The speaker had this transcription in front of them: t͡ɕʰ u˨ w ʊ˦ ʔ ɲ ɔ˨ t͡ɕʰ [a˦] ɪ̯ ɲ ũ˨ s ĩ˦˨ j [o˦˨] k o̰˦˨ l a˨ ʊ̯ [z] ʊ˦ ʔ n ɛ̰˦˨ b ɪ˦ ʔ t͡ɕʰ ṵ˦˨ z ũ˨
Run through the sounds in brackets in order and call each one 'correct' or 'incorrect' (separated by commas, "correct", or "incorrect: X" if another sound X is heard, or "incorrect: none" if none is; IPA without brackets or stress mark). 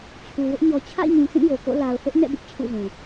incorrect: a̰˦˨, incorrect: o˨, incorrect: θ